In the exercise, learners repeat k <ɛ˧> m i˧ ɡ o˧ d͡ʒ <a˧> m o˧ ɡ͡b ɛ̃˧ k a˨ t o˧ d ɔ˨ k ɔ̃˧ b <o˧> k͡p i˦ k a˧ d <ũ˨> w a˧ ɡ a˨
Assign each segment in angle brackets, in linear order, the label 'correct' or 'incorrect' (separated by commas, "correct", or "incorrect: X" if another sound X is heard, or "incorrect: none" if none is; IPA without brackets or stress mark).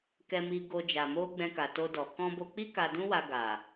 correct, incorrect: a˨, correct, incorrect: ũ˦